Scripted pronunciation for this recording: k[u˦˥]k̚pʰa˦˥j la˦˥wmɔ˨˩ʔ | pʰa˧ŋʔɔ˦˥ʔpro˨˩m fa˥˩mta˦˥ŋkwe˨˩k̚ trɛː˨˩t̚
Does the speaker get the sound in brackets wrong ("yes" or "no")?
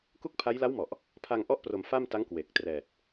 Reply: yes